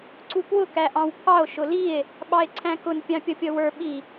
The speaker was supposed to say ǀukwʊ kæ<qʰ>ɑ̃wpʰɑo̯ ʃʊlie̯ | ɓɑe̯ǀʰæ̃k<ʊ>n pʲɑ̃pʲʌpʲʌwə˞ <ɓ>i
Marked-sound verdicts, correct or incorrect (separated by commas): incorrect, correct, correct